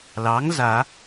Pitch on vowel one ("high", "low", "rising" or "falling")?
rising